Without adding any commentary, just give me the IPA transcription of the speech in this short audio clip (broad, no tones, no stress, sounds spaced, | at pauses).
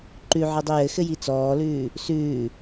ǃ ʉ ʕ ɯ dˤ i j ɘ x ɘ j i t͡s ɔː l ʉː | s ʉː